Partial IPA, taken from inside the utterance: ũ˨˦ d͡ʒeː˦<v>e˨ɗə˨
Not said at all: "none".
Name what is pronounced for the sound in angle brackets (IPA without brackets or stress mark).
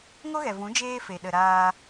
f